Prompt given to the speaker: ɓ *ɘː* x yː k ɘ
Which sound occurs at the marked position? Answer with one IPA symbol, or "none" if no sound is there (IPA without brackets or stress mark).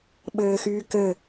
ɘː